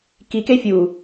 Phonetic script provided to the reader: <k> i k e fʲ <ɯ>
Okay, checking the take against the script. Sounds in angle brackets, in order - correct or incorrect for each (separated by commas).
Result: correct, incorrect